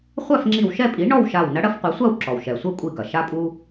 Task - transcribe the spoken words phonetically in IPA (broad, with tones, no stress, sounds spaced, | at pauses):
χʷ a˥˨ f ŋ͡ǁ i˧˩ w ʃ ɛ˥˨ pʼ i˩˥ ɳ ɔ˥˨ w ʃ a˧˩ w n ɐ˧˥ ɽ ɐ˧˥ f qʷ ɛ˩˥ sʷ a˥˨ w ǁ ɔ˩ w ʃ ɛ˩ sʷ ɛ˥˨ kʷʼ i˧˩ ɡ ɐ˩ ʃ a˧ pʼ u˧